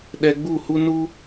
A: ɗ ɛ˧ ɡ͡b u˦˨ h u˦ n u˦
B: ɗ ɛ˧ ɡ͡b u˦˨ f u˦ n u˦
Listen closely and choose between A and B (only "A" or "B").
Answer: A